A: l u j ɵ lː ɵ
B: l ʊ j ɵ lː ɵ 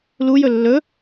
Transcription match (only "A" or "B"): A